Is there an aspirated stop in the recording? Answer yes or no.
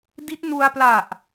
no